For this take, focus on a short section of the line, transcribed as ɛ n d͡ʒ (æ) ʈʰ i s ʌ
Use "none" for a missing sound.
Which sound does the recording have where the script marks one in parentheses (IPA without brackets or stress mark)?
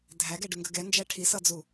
æ